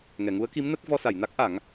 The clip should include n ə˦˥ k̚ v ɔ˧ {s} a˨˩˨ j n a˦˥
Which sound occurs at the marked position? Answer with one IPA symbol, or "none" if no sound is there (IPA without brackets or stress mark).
s